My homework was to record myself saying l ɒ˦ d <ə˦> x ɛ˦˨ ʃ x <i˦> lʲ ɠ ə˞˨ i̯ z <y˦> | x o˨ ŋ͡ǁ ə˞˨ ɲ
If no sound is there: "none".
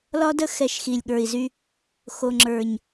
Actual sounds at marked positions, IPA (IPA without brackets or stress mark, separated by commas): ə˦, i˨, y˦